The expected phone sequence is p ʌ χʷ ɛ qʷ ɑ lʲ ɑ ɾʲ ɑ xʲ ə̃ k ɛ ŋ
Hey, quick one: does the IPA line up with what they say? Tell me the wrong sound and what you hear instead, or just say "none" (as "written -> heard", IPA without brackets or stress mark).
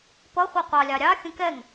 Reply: none